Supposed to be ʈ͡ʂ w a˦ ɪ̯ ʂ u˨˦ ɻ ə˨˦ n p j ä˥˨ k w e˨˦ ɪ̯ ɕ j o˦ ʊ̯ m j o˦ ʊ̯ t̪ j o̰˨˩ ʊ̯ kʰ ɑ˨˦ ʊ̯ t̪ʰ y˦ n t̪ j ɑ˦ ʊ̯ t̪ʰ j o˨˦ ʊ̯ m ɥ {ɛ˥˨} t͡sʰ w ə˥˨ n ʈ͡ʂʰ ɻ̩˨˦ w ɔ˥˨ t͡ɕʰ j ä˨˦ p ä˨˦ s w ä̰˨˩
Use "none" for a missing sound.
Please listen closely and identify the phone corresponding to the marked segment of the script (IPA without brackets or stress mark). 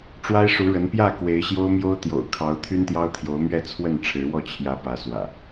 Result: ɛ˥˨